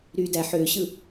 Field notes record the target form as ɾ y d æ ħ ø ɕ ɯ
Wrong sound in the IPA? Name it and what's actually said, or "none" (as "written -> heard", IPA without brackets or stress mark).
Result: none